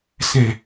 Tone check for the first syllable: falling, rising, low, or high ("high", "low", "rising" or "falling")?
low